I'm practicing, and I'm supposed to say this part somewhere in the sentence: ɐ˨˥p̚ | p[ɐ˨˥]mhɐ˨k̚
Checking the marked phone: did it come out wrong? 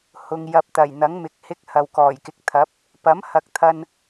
no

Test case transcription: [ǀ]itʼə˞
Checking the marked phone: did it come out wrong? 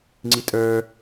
yes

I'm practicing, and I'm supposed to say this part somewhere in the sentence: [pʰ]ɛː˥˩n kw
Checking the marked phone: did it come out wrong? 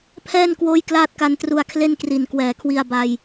no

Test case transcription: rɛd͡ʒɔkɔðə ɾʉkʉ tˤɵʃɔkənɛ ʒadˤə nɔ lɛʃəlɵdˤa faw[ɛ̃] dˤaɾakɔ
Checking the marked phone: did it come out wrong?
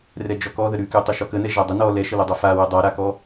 yes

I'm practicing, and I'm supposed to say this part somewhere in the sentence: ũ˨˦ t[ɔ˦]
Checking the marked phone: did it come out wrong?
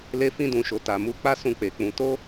yes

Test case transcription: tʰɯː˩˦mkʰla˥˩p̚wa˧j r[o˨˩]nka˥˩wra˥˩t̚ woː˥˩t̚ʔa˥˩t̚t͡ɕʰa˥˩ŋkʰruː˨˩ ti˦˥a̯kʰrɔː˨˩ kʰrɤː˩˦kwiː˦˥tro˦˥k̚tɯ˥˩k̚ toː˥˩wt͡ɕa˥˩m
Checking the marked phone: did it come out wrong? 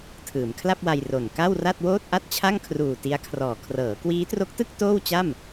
no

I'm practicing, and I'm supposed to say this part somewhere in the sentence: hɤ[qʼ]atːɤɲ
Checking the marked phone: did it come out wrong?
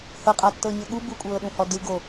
no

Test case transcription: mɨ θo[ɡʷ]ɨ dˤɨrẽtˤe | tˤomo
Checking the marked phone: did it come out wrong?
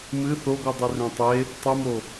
no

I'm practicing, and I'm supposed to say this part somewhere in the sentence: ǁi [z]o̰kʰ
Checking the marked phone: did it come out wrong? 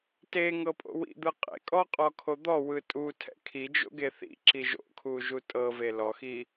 yes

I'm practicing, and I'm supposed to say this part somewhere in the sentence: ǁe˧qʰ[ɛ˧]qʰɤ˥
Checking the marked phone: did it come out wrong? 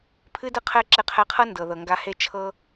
no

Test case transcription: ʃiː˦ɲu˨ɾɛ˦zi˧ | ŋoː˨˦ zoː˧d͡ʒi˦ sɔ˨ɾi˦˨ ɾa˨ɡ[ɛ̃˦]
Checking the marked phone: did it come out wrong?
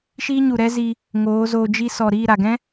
no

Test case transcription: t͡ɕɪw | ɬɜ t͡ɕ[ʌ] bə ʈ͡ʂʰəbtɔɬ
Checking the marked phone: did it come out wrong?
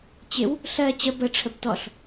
yes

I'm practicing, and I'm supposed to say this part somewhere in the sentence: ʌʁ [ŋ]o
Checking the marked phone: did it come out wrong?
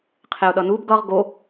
yes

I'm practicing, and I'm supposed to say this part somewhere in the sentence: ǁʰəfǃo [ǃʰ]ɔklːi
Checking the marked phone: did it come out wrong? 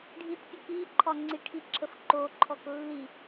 no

